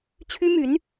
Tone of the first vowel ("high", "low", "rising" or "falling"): high